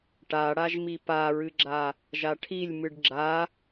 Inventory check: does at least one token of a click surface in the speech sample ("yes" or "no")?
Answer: yes